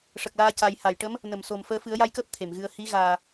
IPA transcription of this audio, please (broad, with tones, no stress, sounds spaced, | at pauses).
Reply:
ʂ ə˨˩ k̚ l aː˧ c a˨˩ j h a˨˩˨ j ʈ ə˧˥ m | n ə˨˩˨ m s o˨˩ m f əː˧ f ɨ˨˩˦ ə̯ j a˧ j k əː˦˥ p̚ t̪ʰ e˨˩˨ m ɣ ɨ˧ ə̯ h i˧˥ ɣ aː˨˩